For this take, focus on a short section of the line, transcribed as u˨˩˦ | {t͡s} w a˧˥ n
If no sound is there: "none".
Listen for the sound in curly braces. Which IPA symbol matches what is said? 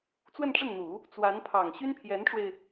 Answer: t͡s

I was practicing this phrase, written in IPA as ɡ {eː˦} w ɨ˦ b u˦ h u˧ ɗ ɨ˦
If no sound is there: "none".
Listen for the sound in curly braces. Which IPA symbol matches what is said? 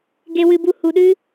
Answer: e˦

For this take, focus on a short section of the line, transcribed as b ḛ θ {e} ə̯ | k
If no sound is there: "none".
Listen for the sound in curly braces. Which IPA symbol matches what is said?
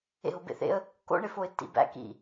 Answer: ḛ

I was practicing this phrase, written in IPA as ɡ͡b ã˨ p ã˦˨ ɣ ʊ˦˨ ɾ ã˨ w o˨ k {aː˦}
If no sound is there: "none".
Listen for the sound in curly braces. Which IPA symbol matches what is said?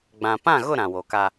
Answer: a˦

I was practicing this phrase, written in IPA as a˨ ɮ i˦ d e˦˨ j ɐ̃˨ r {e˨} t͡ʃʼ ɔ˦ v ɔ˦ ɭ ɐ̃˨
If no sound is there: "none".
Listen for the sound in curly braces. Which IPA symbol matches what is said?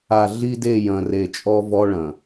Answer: e˨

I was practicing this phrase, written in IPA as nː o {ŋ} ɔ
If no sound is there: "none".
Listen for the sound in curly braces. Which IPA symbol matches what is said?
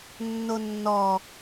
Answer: nː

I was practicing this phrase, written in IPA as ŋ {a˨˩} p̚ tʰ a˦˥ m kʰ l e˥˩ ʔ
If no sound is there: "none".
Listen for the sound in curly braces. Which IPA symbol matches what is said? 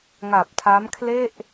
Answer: a˨˩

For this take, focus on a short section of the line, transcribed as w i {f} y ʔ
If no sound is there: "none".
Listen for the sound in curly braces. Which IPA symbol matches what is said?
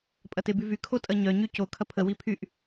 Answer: pʰ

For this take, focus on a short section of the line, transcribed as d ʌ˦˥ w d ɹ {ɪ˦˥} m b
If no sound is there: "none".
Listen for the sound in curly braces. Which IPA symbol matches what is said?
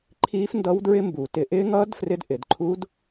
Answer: ɪ˦˥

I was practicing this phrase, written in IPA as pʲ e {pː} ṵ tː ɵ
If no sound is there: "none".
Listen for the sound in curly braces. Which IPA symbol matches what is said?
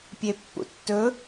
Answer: pː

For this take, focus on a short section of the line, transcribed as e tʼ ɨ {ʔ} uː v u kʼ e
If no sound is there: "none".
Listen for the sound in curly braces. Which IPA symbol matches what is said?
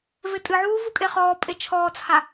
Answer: ʕ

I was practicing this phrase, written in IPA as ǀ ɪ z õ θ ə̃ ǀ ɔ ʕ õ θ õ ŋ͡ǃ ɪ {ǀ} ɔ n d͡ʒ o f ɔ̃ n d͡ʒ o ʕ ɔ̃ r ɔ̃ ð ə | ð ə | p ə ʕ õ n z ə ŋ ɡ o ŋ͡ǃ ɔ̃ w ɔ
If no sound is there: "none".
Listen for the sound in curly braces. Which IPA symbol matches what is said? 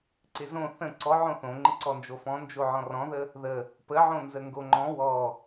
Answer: ǀ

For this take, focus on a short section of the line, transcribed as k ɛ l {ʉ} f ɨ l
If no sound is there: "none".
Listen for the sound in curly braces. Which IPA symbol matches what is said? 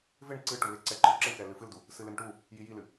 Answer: ɨ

